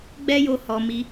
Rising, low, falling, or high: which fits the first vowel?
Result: high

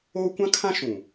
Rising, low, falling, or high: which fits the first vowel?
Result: high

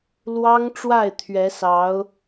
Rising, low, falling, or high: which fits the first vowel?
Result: high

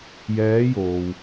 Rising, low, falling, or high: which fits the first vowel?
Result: rising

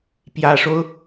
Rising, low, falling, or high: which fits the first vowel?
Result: low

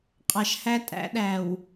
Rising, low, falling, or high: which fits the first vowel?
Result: low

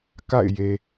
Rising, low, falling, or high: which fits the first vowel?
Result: falling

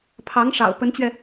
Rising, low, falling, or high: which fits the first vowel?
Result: rising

